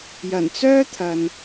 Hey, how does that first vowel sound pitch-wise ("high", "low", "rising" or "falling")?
low